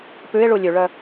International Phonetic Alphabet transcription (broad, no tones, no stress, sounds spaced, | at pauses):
p ʉ ɪ̯ ɭ u lʲ ʉ ɭ œ